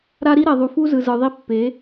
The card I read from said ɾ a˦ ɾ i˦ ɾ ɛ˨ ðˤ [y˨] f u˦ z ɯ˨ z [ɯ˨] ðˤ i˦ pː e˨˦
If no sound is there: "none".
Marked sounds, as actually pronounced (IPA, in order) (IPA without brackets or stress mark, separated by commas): u˨, ɯ˨